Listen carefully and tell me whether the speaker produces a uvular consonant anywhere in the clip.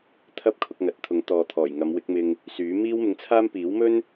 no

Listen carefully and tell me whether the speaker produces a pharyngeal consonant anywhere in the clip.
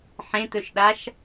yes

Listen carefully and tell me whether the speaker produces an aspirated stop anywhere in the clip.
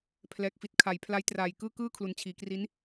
yes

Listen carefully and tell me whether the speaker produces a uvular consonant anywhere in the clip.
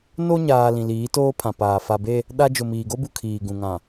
no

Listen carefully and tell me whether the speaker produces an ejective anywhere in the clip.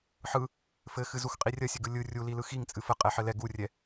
yes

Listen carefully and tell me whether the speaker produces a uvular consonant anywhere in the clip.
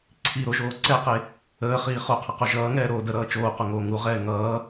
yes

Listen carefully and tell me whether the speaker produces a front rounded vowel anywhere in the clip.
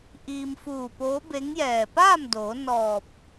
no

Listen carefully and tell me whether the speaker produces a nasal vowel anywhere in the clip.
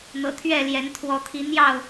no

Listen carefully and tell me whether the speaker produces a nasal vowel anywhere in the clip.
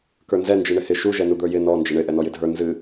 no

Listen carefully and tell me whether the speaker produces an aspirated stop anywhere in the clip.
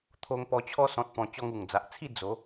yes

